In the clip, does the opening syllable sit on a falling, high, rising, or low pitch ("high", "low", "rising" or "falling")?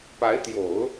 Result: rising